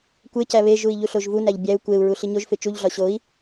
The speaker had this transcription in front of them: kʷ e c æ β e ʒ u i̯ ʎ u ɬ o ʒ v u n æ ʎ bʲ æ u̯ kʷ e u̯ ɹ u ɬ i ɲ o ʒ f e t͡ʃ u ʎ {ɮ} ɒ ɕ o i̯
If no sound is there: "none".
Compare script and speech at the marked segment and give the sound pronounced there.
ɮ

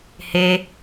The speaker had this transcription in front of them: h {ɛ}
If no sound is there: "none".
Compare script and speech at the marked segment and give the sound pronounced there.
e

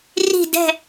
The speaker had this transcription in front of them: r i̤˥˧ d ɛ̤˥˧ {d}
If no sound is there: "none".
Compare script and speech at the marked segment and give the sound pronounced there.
none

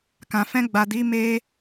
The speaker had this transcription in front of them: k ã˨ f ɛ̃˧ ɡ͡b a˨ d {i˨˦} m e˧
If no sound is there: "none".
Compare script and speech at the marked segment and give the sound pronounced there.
i˨˦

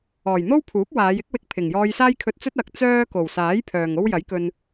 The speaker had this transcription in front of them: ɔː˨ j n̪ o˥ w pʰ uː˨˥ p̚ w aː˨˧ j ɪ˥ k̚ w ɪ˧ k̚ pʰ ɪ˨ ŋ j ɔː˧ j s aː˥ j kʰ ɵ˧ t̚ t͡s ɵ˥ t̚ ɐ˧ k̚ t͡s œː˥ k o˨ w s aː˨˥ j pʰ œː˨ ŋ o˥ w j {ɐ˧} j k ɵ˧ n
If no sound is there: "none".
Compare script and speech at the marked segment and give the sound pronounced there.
ɐ˨˥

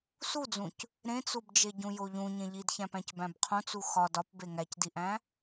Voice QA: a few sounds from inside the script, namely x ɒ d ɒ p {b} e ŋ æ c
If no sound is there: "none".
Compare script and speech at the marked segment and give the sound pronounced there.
b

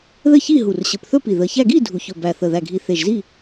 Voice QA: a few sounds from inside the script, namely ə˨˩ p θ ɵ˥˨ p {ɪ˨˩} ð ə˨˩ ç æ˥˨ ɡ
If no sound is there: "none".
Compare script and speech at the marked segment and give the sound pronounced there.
i˨˩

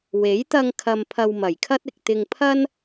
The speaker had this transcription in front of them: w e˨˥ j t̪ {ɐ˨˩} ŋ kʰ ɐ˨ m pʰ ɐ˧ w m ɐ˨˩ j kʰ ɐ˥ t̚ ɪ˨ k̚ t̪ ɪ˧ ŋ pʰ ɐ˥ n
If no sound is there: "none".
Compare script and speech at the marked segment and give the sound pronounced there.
ɐ˧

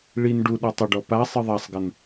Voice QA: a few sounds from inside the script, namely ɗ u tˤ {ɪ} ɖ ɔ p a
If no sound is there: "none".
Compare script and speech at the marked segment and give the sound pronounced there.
ə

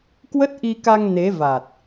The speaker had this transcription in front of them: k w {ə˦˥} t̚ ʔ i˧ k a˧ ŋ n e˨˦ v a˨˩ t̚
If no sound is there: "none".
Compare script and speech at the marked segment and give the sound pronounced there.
ə˦˥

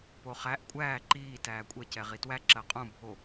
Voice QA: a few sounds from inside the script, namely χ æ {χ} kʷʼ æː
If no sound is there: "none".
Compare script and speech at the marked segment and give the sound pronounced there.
ʔ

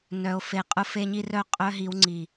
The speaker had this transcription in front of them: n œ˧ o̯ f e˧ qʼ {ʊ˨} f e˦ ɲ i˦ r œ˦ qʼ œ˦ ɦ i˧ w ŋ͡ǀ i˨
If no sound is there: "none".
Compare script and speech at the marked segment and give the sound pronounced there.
ʊ˦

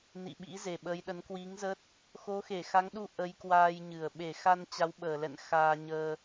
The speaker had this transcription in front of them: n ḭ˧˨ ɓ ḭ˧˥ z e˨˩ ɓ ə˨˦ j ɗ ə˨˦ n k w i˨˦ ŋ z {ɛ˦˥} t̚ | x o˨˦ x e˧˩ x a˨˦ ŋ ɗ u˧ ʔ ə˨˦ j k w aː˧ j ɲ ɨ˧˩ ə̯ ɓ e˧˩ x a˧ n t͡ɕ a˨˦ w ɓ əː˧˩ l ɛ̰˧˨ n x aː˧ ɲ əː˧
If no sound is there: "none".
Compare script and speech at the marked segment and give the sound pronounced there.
ə˦˥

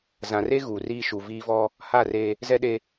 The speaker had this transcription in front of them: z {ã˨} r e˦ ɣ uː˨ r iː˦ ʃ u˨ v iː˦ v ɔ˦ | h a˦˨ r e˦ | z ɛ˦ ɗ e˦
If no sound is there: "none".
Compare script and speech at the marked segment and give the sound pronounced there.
ã˨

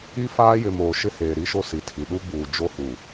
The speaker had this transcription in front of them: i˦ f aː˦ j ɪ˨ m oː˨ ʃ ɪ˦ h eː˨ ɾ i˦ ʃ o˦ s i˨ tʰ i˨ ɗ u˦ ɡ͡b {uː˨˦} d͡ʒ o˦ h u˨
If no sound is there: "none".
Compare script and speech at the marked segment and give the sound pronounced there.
uː˨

